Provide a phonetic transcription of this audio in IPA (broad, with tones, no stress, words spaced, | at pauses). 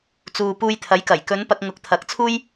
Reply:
t͡suː˨puː˧jt̪ʰɐ˨˥jkɐ˨˩j kɵ˨˧n pɐ˧k̚ŋʊ˨˥k̚t̪ʰɐ˨˥k̚t͡sʰuː˥j